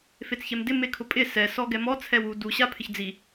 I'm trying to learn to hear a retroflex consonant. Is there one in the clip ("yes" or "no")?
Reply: no